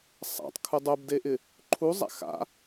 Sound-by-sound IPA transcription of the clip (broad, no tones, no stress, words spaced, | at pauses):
sˤa̰tˤkʰu dˤobdeʔɪ | ǃʰuzˤa̰ xa̰